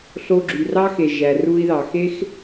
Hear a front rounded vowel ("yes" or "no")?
yes